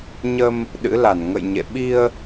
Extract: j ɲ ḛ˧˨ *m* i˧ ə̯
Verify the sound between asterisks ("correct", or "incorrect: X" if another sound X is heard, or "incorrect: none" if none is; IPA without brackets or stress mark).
incorrect: ɓ